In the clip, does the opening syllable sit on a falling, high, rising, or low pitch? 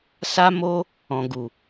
high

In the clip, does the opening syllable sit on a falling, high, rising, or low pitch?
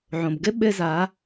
low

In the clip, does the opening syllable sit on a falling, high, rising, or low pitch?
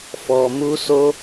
low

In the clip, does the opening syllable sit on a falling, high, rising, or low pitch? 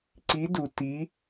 rising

